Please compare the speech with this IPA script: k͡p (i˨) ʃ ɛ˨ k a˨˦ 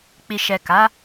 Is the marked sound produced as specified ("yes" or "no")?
yes